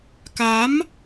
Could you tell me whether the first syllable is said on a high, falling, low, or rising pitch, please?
rising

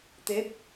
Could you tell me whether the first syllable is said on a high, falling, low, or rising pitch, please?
rising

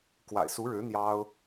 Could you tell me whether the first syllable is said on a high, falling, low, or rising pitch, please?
low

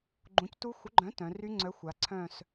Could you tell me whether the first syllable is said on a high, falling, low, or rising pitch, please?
rising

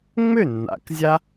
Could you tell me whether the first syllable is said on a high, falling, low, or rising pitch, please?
falling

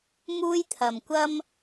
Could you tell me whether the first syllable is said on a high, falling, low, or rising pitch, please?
high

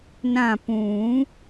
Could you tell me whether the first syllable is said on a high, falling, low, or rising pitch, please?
falling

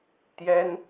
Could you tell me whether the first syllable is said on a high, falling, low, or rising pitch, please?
high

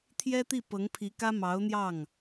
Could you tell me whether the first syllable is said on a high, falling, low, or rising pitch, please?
high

